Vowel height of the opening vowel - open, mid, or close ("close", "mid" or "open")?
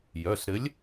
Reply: mid